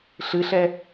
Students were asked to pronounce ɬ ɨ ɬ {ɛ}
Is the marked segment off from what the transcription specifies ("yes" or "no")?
no